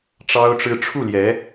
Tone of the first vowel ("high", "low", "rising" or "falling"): high